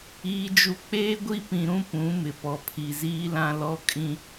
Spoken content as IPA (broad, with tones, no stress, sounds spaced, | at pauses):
iː˨ d͡ʒ u˨ k͡p eː˦ ɡʷ i˦ p ĩ˨ ɾ ũ˦ p ũ˨˦ m ɪ˨ p ɔ˨ pʰ i˨ z iː˦ l ã˦ l ɔ˦ kʼ ĩ˦